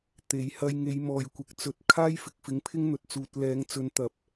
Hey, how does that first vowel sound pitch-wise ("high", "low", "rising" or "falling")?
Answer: rising